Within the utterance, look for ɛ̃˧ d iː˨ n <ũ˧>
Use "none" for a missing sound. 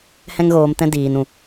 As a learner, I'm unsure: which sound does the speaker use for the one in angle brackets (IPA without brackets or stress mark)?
ũ˨